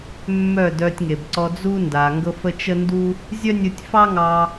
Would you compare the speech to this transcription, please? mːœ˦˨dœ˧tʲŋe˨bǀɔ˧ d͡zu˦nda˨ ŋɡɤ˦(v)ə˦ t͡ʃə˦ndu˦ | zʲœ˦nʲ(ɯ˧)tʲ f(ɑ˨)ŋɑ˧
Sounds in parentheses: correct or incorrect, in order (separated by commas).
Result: incorrect, correct, incorrect